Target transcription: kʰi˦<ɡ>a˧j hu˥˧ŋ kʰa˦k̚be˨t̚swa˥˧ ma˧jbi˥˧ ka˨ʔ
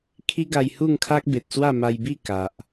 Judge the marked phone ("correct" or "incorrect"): correct